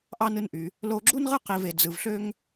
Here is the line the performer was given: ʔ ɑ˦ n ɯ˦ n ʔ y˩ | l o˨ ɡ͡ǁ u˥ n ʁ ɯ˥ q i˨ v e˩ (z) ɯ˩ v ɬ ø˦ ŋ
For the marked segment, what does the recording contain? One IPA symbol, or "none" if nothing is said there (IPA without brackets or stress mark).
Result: d͡z